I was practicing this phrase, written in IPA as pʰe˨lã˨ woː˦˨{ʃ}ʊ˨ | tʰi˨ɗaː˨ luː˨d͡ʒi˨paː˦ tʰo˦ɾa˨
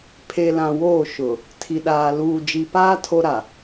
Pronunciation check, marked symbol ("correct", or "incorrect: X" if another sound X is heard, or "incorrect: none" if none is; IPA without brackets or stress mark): correct